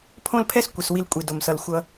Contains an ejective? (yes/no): yes